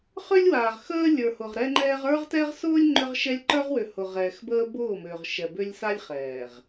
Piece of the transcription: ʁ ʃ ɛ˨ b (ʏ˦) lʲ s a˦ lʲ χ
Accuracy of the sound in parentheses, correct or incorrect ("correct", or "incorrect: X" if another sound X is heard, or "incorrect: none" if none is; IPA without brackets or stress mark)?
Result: correct